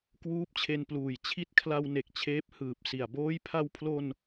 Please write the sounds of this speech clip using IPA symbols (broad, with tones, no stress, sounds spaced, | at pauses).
k w uː˦˥ p̚ t͡ɕʰ e˧ n p l uː˨˩ j t͡ɕʰ i˦˥ t̚ kʰ l a˧ w n e˨˩ k̚ t͡ɕʰ eː˦˥ p̚ h ɯː˨˩ p̚ s i˨˩ a̯ b oː˦˥ j pʰ a˧ w pʰ l o˧ n